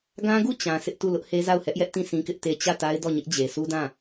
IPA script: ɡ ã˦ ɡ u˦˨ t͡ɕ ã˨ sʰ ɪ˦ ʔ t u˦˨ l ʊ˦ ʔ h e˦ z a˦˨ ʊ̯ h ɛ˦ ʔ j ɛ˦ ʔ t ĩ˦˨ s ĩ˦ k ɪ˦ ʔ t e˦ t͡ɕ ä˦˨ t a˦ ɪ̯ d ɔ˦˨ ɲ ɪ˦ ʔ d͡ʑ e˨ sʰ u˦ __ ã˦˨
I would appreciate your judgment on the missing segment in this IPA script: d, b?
d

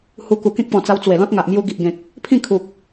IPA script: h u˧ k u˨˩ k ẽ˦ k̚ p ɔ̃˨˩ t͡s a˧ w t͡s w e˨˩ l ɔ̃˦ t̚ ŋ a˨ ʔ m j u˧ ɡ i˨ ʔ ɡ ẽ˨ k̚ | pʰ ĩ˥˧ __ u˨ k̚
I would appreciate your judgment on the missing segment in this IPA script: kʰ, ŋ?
kʰ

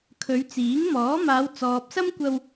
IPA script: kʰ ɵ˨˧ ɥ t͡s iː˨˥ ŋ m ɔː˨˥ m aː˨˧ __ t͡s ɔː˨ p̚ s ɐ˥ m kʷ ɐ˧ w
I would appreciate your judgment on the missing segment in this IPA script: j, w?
w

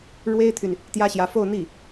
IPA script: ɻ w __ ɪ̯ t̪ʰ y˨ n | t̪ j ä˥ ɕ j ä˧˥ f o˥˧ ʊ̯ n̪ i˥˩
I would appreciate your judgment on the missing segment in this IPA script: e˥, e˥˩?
e˥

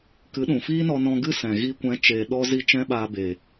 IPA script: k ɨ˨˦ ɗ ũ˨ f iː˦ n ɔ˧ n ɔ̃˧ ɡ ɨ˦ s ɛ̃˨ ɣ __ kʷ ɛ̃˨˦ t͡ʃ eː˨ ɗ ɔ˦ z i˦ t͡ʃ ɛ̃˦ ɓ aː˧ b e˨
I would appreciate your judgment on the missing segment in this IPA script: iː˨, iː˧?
iː˧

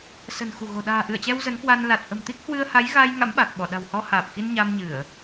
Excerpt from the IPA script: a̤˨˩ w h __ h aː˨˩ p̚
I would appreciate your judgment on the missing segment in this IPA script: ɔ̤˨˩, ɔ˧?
ɔ˧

